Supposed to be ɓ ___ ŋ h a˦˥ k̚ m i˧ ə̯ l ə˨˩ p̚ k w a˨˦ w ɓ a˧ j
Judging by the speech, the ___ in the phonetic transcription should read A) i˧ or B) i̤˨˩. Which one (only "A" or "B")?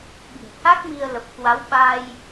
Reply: B